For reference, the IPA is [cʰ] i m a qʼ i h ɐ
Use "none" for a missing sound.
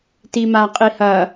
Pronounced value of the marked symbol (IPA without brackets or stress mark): t